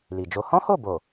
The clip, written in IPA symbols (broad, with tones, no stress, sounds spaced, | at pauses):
l i˨ d͡ʒ o˧ h ɔ̃˦ h o˦˨ b o˨